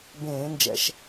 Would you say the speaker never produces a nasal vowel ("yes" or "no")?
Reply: no